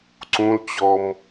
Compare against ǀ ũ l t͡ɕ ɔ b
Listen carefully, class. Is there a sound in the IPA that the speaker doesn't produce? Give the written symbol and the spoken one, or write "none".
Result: b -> m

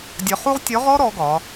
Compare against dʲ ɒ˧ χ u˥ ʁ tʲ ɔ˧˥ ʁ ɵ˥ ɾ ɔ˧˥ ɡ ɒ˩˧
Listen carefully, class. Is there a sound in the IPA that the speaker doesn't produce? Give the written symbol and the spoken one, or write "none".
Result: ɵ˥ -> ɔ˥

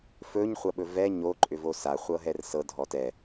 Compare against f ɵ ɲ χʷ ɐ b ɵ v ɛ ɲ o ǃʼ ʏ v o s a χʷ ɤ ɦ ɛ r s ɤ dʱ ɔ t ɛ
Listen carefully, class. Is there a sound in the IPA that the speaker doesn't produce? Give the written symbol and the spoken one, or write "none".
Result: b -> ɓ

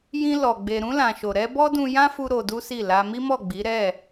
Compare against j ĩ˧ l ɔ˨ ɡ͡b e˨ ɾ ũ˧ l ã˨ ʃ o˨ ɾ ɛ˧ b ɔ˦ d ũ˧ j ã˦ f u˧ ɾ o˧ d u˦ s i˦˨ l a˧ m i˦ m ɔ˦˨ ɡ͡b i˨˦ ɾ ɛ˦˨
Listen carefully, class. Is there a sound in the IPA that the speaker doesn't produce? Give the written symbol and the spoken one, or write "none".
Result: none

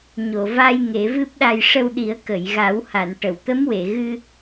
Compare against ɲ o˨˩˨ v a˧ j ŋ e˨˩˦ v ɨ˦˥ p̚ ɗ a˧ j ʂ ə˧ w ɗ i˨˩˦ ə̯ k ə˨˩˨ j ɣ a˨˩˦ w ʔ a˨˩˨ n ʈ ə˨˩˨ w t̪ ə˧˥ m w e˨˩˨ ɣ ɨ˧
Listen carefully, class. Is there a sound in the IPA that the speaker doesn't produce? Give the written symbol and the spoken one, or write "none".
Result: ʔ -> h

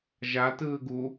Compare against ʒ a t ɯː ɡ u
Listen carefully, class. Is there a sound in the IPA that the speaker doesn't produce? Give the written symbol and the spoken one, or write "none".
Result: none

